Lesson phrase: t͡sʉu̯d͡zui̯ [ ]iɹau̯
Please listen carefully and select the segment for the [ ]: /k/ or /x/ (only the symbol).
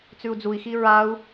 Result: x